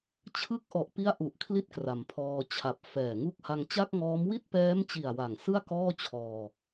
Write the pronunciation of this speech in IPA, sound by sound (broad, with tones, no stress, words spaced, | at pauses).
t͡ɕʰɯ˦˥k̚ʔɔ˨˩ʔpi˦˥a̯ ʔu˨˩ʔ kʰli˥˩t̚kra˩˦mpʰɔː˧ t͡ɕʰa˨˩p̚fɛː˨˩ŋu˥˩k̚ ha˧ŋt͡ɕa˥˩k̚ŋɔː˦˥m wi˥˩t̚pɛː˦˥mt͡ɕi˨˩a̯ wa˨˩ŋsɯ˥˩a̯ kɔː˥˩t͡ɕʰɔː˧